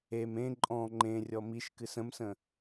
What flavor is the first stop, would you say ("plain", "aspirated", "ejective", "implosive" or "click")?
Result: click